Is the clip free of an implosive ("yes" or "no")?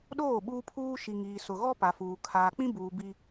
no